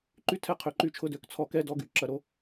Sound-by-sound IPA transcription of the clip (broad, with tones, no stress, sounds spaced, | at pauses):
ǃ y˦ tʰ ɛ˦ qʰ ø˨ ǃ y˦ t͡ʃʰ ʊ˦ d ø˨˦ k t͡sʰ ɔ˧ k ɛ˦ d ɔ˦ ɡ y˦˨ ǁ ɐ˧ ɾ o˧